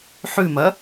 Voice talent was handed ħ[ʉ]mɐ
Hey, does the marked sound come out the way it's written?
yes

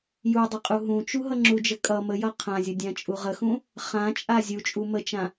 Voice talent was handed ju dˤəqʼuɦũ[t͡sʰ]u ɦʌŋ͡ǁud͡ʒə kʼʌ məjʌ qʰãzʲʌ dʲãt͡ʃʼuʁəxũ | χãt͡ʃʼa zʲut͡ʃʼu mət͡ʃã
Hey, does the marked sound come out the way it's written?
no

